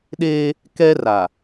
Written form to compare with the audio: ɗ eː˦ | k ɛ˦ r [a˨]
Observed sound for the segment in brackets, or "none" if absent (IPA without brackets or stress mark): a˨